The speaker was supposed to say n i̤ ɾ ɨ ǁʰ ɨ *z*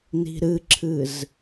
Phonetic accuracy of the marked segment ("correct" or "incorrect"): correct